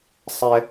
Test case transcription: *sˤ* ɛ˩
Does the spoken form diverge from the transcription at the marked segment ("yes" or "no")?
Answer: no